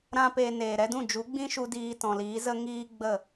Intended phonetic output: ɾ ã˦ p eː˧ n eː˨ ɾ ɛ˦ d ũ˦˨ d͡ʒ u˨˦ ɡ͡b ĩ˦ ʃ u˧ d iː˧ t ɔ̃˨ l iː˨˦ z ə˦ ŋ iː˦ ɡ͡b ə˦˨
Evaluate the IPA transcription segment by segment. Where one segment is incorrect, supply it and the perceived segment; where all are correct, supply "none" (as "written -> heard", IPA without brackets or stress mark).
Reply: none